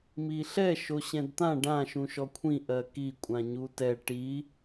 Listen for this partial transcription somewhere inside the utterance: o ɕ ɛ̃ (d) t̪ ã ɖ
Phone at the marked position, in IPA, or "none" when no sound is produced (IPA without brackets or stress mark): d